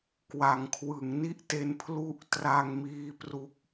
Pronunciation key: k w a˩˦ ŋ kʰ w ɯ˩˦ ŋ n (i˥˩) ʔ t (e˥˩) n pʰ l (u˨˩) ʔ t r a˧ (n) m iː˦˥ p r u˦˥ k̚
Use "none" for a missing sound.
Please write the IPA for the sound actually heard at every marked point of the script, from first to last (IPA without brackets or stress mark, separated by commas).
i˥˩, e˧, u˥˩, ŋ